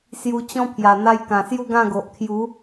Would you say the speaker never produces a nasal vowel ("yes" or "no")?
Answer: no